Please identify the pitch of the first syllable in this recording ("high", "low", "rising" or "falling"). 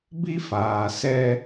high